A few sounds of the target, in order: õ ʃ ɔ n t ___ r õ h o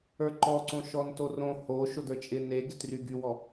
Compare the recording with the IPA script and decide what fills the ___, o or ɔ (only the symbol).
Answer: o